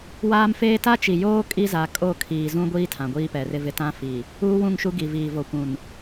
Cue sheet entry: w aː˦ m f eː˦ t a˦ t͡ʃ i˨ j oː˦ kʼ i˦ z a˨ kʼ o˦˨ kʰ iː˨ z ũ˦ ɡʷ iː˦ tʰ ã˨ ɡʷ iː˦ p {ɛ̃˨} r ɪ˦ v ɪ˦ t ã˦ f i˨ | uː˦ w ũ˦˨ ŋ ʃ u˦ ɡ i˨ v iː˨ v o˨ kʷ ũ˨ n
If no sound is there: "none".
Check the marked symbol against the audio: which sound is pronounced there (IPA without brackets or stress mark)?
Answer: ɛ˨